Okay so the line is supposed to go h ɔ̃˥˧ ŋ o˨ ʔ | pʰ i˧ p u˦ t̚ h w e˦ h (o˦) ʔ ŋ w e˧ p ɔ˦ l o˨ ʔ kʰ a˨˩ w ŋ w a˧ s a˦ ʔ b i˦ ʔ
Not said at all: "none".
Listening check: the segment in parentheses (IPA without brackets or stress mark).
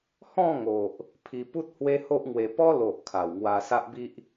o˦